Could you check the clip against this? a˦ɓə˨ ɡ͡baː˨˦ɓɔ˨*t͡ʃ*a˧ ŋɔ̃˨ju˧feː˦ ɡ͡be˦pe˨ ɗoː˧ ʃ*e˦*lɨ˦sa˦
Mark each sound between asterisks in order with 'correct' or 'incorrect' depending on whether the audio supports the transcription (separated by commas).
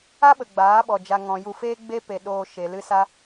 incorrect, incorrect